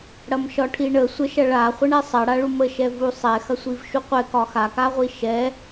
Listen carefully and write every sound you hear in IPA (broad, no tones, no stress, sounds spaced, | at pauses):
ɽ ɐ m ʃ ɒ ʈʰ i ɳ ə sʷ ə ʃ ɐ ɭ a χʷ ə ɳ ɛ sˤ ɐ ɽ a ɭ u m ə ʃ ɛ v u sˤ ɛ x ɐ sʷ i v ʃ u qʷ ɛ k ɒ x a k a ʁʷ i ʃ ɛ